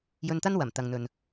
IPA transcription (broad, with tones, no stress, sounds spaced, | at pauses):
j ɵ˧ n t̪ ɐ˥ n w ɐ˨˩ m t̪ ɐ˨ ŋ n̪ ɵ˨ n